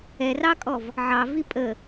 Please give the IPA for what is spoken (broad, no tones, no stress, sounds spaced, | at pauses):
ɛ r ɑ kʼ ɔ v | ʕ ɑ v i pʼ ə